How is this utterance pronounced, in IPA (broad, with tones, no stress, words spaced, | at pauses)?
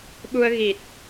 ɓu˧ə̯ɣi˨˩t̚